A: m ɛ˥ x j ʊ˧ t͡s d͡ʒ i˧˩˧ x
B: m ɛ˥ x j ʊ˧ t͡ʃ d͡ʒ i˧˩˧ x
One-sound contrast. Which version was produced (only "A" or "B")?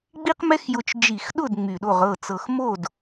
B